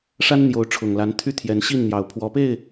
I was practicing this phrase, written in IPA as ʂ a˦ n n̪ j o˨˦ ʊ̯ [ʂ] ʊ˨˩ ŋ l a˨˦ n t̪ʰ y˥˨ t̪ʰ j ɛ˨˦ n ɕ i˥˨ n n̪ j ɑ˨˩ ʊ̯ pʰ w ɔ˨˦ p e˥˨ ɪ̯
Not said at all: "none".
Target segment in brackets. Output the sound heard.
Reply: ʈ͡ʂʰ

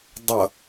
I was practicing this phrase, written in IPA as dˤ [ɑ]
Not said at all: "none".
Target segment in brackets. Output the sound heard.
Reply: ʌ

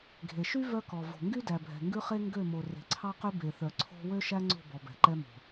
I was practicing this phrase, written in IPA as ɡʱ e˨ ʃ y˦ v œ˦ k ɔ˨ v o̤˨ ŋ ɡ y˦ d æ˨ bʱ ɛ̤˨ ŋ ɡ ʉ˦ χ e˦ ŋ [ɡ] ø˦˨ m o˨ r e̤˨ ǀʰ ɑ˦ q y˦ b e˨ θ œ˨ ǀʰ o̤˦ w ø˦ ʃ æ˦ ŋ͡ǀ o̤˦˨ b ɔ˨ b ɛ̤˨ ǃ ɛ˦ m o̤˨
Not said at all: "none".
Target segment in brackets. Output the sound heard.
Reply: ɡ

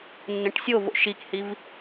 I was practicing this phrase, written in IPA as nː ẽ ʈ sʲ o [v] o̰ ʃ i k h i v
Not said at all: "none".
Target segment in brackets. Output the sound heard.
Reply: v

